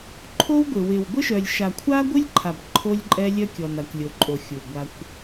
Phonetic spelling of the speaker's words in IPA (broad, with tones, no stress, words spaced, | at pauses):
ǃʰo˦wɡʷɪ˨wɪ˨w ɡʷɪ˦ʃœ˨lʲ ʃa˨kʷʰa˦ɡʷɨ˦lʲǃʰa˨b ǃʰo˦lʲǃʼɛ˦lʲœ˦kʲɔ˨n a˨kʷlʲo˨ǃʼo˨ xʲu˨ɡʷa˦kʷ